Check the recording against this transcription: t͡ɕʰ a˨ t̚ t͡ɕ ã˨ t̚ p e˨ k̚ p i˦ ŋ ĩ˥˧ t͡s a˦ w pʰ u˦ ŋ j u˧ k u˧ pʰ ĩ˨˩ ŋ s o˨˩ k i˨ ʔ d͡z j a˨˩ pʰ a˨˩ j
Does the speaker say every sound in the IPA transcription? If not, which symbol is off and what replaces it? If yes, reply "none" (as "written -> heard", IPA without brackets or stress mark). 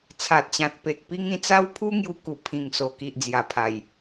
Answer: t͡ɕʰ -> t͡sʰ